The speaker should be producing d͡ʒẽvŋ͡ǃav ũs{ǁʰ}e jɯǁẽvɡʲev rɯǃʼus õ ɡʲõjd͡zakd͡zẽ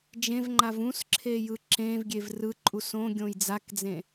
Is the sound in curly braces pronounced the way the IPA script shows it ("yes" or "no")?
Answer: yes